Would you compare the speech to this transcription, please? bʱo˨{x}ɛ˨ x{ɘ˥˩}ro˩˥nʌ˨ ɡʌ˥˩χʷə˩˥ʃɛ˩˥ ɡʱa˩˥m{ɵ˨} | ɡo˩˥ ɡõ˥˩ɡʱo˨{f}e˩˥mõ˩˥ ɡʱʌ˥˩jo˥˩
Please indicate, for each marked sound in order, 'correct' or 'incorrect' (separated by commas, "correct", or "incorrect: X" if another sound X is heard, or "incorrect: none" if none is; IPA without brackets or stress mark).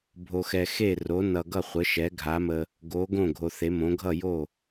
correct, incorrect: e˥˩, incorrect: ə˨, incorrect: θ